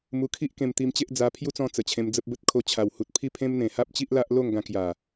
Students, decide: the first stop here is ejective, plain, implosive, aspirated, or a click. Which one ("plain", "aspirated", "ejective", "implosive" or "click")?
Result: aspirated